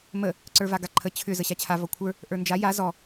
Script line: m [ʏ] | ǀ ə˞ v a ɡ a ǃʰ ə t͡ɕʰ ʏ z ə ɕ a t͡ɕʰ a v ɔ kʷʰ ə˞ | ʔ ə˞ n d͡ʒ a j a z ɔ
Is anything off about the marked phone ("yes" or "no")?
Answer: yes